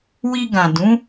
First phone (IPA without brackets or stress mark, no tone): w